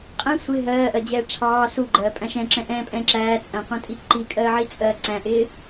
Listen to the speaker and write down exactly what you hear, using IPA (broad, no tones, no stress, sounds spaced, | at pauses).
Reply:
qʼ ɛ̃ sʷ ɪ ɦ ɜː ʔ ɜ d͡ʑ ɛː ʈ͡ʂʰ ɑː s u ɡ͡ǃ ɜː pʼ æ̃ ʃ ɛ̃ ǁ ɛ̃ ʔ ɛ̃ː pʼ ɛ̃ː ǁ æː t͡sʼ æ̃ qʷ æ̃ tʼ i ǃ i kʼ ɜː ʕ i t͡sʼ ɜː ǀ æ̃ ʔ ɪː